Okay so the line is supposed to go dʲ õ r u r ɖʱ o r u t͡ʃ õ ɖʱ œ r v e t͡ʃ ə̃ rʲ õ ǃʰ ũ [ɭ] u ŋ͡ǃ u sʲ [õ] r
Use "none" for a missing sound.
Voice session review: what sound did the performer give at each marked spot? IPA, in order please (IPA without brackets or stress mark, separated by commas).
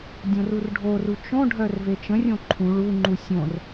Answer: ɭ, õ